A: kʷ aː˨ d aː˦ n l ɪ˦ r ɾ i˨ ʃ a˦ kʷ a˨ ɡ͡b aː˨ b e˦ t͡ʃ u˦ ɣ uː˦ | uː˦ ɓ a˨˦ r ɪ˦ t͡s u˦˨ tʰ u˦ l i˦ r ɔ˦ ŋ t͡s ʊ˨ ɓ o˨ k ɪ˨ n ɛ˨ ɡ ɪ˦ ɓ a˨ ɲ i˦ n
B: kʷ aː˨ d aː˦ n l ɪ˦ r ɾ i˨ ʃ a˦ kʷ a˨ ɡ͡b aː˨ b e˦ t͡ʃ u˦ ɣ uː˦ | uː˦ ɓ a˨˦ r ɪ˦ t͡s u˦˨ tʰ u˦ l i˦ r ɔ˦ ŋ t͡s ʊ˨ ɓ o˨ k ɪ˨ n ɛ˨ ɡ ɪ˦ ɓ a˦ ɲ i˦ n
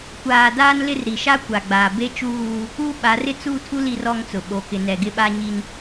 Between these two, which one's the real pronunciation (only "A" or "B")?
B